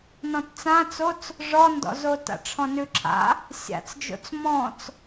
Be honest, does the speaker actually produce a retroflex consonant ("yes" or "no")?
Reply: yes